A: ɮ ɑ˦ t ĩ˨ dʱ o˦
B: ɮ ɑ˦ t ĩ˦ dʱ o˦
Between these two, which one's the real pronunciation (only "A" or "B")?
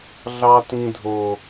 B